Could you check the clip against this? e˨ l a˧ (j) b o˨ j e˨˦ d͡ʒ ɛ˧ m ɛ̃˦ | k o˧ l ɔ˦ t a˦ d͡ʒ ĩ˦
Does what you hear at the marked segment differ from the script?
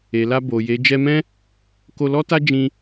yes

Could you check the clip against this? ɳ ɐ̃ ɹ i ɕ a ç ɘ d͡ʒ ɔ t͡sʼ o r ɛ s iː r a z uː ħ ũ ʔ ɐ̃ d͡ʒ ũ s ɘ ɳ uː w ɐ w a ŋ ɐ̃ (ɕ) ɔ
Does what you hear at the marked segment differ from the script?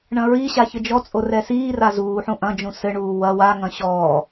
no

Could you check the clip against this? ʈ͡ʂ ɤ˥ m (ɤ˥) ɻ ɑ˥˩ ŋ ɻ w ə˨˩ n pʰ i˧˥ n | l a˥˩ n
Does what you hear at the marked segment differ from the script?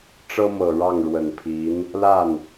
yes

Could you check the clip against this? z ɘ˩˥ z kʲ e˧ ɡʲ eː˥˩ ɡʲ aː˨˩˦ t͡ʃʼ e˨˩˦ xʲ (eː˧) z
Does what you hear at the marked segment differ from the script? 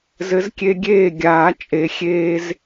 no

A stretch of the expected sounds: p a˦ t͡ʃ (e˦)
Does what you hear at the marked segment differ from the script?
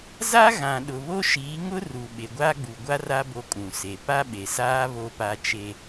no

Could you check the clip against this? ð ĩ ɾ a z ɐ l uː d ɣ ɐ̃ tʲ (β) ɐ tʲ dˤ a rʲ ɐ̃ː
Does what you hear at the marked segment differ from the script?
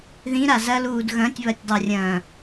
no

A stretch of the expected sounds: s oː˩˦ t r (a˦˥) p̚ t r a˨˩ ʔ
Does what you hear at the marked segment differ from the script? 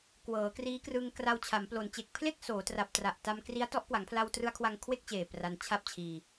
yes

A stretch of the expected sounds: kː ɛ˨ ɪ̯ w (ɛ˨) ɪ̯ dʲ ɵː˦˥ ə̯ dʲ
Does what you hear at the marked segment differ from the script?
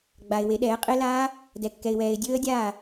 yes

